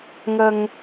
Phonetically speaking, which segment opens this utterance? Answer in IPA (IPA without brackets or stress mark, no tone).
ŋ